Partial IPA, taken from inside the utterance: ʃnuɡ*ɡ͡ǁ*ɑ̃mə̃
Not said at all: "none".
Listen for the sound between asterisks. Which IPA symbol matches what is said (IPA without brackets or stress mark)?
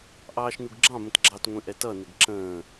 ɡ͡ǁ